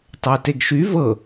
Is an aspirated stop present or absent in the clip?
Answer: absent